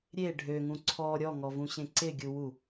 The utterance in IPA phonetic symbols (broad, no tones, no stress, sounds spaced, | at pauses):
ɾʲ e ɖʱ ø ŋ ũ ǀʰ ɔ ɾʲ ɔ ŋ ɔ v ũ ɕ ẽ ǀ ɪ ɡʲ u w u